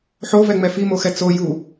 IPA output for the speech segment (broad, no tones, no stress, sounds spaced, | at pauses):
ħ o v ɛ ŋ͡m ɛ f i m o x ɛ t͡s o j u